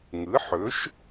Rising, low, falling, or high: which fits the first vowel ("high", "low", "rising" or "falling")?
rising